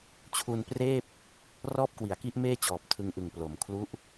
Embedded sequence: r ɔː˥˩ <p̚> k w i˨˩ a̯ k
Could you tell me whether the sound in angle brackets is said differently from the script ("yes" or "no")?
no